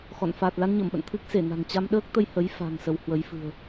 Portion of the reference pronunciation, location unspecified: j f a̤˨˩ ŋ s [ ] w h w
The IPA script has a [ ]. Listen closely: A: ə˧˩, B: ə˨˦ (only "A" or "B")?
B